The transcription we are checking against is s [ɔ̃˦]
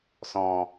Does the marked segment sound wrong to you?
yes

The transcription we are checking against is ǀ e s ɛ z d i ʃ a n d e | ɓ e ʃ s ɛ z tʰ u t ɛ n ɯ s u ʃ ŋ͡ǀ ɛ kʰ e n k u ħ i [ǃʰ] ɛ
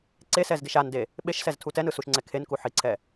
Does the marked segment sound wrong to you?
yes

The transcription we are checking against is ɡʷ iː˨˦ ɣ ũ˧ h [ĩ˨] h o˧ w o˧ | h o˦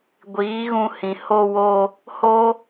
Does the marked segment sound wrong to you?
no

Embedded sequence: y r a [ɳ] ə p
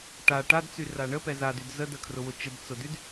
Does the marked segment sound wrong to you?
no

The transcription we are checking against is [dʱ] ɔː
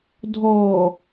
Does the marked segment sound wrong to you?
no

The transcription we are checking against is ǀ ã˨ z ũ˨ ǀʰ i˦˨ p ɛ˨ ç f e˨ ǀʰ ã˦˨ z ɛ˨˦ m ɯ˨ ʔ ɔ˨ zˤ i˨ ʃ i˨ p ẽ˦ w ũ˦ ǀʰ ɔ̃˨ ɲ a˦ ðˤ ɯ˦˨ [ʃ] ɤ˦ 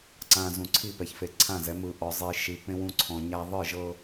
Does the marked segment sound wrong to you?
yes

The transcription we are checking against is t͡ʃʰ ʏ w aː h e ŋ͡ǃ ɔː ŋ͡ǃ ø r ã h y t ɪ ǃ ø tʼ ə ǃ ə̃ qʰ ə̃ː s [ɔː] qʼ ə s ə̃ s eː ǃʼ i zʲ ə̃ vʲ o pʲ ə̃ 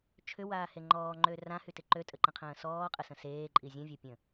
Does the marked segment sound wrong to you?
no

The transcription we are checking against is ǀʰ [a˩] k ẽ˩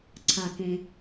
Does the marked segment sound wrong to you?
no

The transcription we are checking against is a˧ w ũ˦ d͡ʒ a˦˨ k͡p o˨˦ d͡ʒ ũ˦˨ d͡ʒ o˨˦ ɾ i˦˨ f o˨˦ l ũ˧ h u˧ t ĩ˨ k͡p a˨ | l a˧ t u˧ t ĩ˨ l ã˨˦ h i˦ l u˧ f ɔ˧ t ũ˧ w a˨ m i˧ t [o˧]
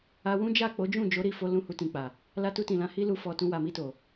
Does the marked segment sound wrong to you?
yes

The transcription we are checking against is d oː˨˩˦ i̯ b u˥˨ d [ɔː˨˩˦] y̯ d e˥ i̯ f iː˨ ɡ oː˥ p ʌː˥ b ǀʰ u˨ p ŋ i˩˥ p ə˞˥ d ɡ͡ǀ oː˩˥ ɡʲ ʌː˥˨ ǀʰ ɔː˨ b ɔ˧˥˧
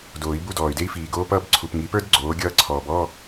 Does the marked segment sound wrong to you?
yes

